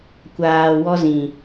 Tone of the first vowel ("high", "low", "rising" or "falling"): low